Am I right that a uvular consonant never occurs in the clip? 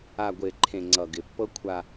yes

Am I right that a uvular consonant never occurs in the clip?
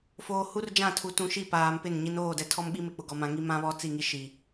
yes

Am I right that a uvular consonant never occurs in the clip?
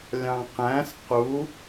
no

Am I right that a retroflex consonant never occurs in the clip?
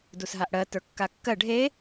no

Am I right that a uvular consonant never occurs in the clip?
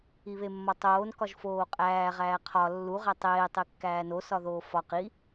no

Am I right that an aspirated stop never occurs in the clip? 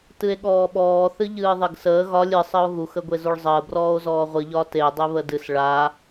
yes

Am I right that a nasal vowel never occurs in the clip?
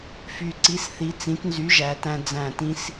no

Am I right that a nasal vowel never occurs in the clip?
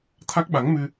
yes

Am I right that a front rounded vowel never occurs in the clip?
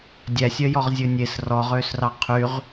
no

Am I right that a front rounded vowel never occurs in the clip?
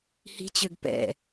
no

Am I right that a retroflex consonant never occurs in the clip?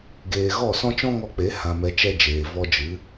yes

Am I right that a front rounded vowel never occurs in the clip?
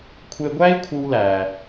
yes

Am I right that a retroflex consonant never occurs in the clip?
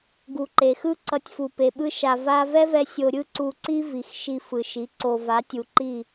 yes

